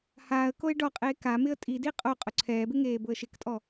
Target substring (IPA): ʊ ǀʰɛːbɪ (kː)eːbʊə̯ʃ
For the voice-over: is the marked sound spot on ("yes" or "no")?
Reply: no